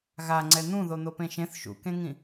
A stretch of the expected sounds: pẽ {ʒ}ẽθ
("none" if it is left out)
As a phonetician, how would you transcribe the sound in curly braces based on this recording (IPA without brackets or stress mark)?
ʃ